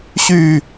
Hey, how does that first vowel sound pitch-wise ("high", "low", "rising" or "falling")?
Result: falling